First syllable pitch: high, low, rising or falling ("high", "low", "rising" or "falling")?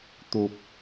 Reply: high